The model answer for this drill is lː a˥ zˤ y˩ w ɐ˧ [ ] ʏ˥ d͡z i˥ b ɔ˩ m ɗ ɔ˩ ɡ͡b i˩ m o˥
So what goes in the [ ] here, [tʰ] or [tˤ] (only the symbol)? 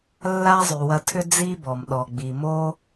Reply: tʰ